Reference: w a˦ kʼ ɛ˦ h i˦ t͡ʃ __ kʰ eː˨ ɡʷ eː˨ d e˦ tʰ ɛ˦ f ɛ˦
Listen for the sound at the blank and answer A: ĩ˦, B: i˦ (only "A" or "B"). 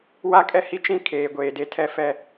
A